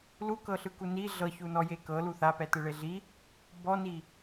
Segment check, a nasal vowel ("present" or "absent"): absent